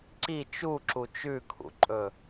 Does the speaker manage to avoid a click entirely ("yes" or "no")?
no